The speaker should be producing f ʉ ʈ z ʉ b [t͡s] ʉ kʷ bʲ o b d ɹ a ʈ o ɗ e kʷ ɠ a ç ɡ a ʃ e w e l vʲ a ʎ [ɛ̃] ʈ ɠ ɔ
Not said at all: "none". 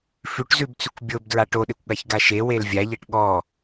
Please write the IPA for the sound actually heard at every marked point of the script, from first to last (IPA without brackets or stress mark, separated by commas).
t͡s, ɛ